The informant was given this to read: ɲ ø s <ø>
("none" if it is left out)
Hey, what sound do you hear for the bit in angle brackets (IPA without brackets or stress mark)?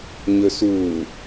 u